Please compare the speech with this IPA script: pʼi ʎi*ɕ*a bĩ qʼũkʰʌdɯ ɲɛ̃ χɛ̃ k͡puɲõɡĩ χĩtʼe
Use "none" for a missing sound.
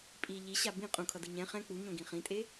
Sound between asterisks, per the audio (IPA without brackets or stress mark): ɕ